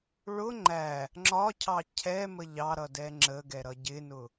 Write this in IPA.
ɭ ʊ ŋ͡ǃ æ | ŋ͡ǁ ɒ cʰ ɑ cʰ ɛ m ə ʎ ɑ ɾ ʌ d ɛ ŋ͡ǁ ə ɡ ɛ ɾ ʌ ɟ ɪ n ʊ

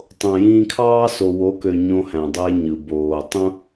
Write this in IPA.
tˤ õ˨ j ĩː˧ kʰ ɑː˦ s o˨ w o˨˦ k ø˨ ɲ õ˧ h æ̃˨ dˤ e˧ ɲ ɯ˨ b oː˨ tˤ ũ˦

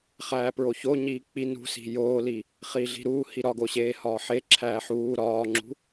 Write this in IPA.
χ æː p ɹ o ç o ɲ iː k͡p i n ṳ s i̤ j oː l i | χ i ɮ i̤ ɾ uː h i ɾ ɒ ɡ o ɕ eː h ɒː ħ e ǁʰ æː ħ uː ɾ ɒː ŋ͡ǁ ṳ

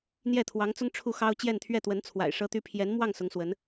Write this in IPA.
n̪ j ɛ˥˩ t̪ʰ w ɑ˧˥ ŋ t͡s ʊ˥ ŋ ʈ͡ʂʰ u˥˩ x ɑ˥ ʊ̯ t͡ɕ j ɛ˥˧ n t̪ʰ ɥ ɛ˥˩ t̪ w ə˧˥ n t͡sʰ w a̰˨˩ ɪ̯ ʂ ɤ˥ t̪ y˥ pʰ j ɛ˧˥ n m w ɑ˥˩ ŋ s ʊ˧˥ ŋ s w ə˧˥ n

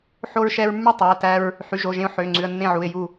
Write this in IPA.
ħ o˧ ɹ ʃ ɛ˧ ɹ mː y˥˩ tˤ ɑ˩˧˩ ə̯ t æ˧ ɹ | ħ y˩˧˩ ʒ o˩˧˩ ʒ ẽ˧ ʊ̯ ħ ø˩˧˩ ŋ͡ǀ ʉ˩˧˩ ə̯ nː ẽ˥˩ ʕ u˩˧˩ ɪ̯ j u˥˩

